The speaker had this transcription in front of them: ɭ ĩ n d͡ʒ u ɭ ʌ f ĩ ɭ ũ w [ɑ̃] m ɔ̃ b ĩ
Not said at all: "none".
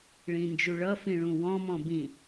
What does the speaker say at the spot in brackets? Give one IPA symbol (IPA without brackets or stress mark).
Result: ɔ̃